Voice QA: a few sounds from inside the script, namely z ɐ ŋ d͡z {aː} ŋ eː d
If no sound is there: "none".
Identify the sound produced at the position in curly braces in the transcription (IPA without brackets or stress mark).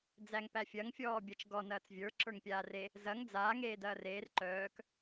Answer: aː